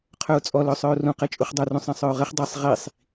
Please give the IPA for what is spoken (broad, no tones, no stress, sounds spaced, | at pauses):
qʰ œ ʊ̯ t͡sʼ ɔ l œ sˤ œ ʊ̯ r ũ q ɛ t͡ʃʼ u χ dˤ œ r ũ sˤ ɛ̃ sˤ œ ʊ̯ ʁ ɘ χ dˤ e sˤ ʁ i sˤ